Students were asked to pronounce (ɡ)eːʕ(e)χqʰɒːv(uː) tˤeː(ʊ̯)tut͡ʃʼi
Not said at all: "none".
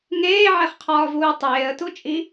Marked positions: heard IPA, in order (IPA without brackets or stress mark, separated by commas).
ŋ, e, uː, ə̯